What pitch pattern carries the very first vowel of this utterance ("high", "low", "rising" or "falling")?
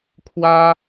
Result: high